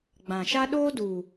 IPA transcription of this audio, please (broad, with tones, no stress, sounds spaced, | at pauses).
ɡ͡b ã˨ ʃ a˦ ɗ oː˦ d u˨